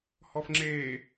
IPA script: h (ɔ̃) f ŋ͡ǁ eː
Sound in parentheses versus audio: incorrect: ɔ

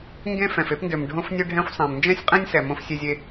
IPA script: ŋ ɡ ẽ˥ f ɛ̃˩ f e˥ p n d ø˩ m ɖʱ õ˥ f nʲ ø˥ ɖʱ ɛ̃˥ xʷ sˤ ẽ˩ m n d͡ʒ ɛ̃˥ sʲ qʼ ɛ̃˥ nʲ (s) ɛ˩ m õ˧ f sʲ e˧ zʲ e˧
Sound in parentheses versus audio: correct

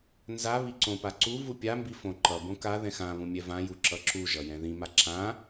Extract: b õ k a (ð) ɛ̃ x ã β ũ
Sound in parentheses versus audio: correct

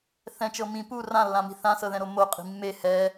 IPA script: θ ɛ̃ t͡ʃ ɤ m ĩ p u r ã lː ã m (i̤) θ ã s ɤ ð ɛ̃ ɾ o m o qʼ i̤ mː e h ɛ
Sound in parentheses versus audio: correct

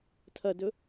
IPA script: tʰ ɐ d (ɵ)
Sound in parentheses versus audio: correct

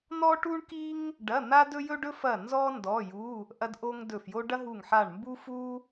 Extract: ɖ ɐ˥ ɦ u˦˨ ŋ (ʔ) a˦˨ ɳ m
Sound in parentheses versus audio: incorrect: ħ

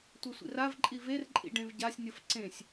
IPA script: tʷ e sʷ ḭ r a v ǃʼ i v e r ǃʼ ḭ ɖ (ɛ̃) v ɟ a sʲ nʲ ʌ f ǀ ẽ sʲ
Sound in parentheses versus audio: incorrect: ẽ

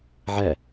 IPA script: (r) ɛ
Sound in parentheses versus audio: incorrect: ʕ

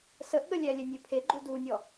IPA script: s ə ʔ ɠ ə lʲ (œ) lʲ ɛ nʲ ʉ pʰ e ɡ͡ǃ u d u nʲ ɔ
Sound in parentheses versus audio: incorrect: æ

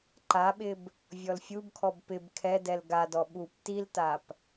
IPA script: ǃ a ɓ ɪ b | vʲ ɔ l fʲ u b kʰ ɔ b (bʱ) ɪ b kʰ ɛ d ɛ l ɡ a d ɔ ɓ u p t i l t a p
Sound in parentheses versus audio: incorrect: p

